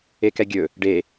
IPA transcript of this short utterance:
ekɛɡʲɵ | ɖe

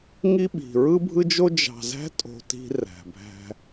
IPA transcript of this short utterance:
ŋi˦ɓi̤˨ ɹɯ˦bʱɯ˦d͡ʒo˦ d͡ʒɑ̤˨zæ̤˦tʼo̤˨ ti̤˦ ræ̤˨bʱæ̤˦

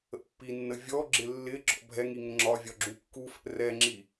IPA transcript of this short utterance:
ə̰pːinːə vʲɔɡ͡ǁɪ lːɪ ɡ͡ǁɔ̰bʱɛŋi ŋəŋ͡ǁɒvʲɒ ɡ͡ǁukːufɛ̰ rɛŋ͡ǁi

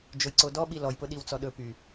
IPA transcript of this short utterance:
d͡ʒojǀodɔɓi lɔjpʊ ɗiwt͡sɔɗɵpy

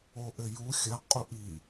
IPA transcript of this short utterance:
oʔɘju xʲɐ qʼuʔi

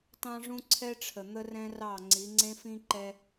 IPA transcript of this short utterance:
tɑ̃˦ʐũ˦ǀʰɛ˦ʈ͡ʂʰə˨ n̪ə˦rɛ̃˦rɑ˦˨ ŋ͡ǀi˨˦ŋ͡ǀẽ˦fĩ˦ ǃɛ˦

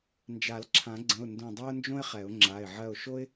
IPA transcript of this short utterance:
nd͡ʒa˨˩˦lǁʰã˨˩˦ɡ͡ǀə̃˩˧˩ʊ̯ ndõ˦˨dˤø˥ʊ̯nd͡ʒõ˥ɪ̯χɛ˨˩˦ʊ̯ ŋ͡ǁa˩˧˩ɪ̯ʕɜ˦˨ʊ̯ʃo˥ɪ̯

